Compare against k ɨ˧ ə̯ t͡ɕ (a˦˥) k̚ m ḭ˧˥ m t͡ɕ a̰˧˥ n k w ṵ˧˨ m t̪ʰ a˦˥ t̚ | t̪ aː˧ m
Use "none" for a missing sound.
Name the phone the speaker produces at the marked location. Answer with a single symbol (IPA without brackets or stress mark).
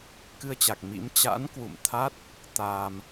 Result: a˨˩